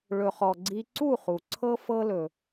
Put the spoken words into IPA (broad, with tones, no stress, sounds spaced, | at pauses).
ɭ ɵ˩ χ ɔ˩ ɡ͡ǀ i˧ ǀ u˥˩ χ u˩ ǀʰ ɤ˧ f ɤ˧ l ɵ˩